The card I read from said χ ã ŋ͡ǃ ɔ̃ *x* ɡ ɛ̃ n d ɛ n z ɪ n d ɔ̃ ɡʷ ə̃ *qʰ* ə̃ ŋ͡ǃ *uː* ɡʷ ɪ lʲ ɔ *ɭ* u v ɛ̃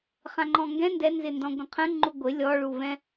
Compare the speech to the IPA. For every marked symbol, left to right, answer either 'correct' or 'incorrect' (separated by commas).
incorrect, correct, incorrect, correct